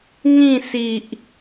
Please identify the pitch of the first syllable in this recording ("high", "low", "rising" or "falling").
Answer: falling